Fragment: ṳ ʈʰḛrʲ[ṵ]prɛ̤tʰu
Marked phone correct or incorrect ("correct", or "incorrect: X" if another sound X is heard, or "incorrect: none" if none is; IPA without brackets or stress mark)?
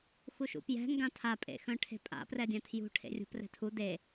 incorrect: ṳ